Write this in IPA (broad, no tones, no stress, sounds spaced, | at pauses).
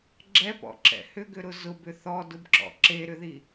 ɡ͡ǁ ɛ p ɔ̰ ǁ ɛ̰ h ʏ ɡ ʏ ɾ ʊ z ʊ b ʏ θ ɔ d ʊ b ǁ ɔ̰ ǁ e ɾ ʏ ð i